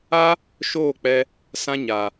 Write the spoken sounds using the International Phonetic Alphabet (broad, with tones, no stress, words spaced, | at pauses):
a˦ | ʃoː˦˨k͡pɛ˧ | sã˧ɲa˨